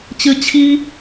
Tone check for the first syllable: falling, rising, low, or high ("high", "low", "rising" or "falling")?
high